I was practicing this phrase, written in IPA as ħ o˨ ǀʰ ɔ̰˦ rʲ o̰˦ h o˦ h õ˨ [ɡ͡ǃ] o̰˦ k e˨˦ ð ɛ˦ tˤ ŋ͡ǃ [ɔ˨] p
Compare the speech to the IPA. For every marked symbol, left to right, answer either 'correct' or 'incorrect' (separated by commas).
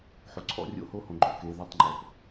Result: correct, correct